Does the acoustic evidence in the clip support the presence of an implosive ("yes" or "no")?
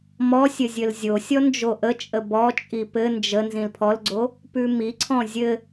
no